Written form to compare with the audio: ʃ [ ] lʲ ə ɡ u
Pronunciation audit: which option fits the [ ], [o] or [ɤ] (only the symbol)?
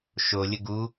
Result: o